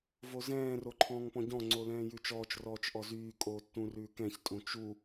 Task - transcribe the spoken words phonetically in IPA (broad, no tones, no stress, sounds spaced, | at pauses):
v o z ɛ̃ː r o ǃʰ ɔ̃ː ŋ p ɔ̃ ɟ ɔ̃ ŋ͡ǀ o l ɛ̃ː j ʉ t͡ʃ ɔː t͡ʃ r ɔː t͡ʃ ʔ ɔ z yː kʼ oː tː ũ r ʉː k ɛ̃ ç tʼ ũ t͡ʃ u